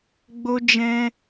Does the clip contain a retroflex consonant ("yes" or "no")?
no